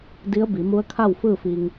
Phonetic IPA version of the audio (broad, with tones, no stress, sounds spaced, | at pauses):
d i˧˥ ə̯ b i˩˧ m u˧˥ ə̯ kʰ a˥˨ w f ɯː˥˨ f i˧ ŋ